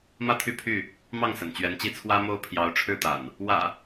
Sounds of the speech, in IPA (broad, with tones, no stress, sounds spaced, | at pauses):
m ä˦ t̪ʰ y˥˨ pʰ y˥˨ | m ɑ˥˨ ŋ s ə̰˨˩ n t͡ɕ ɥ ɛ˨˦ n t͡ɕ i˥˨ t͡sʰ w ä˦ m o˦ ʊ̯ pʰ j ɑ˨˦ ʊ̯ ʈ͡ʂʰ ɻ̩˥˨ t̪ a̰˨˩ n | w ä̰˨˩